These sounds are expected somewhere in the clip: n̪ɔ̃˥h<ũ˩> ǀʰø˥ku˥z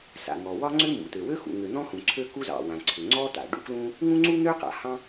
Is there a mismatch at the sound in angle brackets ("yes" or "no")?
no